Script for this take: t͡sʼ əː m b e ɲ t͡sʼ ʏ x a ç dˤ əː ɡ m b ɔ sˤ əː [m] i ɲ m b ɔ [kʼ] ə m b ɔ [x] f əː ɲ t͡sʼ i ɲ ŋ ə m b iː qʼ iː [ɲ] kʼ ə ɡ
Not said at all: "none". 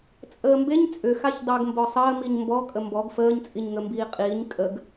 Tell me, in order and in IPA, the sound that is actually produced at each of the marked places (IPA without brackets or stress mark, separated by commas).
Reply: m, kʼ, ɡ, ɲ